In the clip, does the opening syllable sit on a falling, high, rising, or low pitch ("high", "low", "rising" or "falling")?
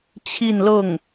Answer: falling